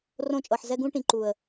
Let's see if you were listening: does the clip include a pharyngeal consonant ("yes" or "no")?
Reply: yes